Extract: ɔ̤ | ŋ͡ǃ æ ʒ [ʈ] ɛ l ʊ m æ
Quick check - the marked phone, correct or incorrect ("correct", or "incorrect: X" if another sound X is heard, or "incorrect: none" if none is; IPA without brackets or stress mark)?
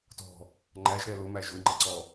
incorrect: ɾ